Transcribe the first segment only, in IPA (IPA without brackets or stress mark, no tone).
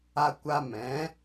a